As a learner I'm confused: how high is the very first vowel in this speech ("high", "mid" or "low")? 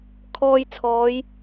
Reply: mid